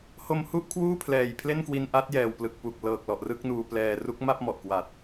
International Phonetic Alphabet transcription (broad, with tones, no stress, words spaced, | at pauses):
ho˧mhu˥˩ʔ kʰwuː˥˩pʰlɛː˨˩jpʰle˥˩nkwi˧n ʔa˦˥t̚jɛː˨˩wplɯ˨˩k̚pu˨˩k̚ lɤː˨˩k̚lɔ˨˩ʔ rɯ˥˩k̚nuː˧plɛː˧ ru˦˥k̚ma˥˩p̚mɔ˨˩ʔkwa˨˩t̚